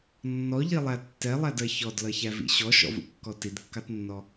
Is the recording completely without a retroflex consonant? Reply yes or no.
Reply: yes